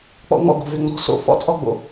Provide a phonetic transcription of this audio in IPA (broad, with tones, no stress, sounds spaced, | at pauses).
k͡p ɔ̰˦ ŋ͡m ɔ̰˦ ɡ o̤˨ v ʏ˧ ŋ͡m ɔ̤˦ s o̰˧ f ɔ̰˦ t͡sʼ ɔ˦ ɡ͡b o̰˧